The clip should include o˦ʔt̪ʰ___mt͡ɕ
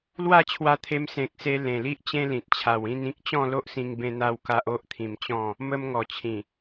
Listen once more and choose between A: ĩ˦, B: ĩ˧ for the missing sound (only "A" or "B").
B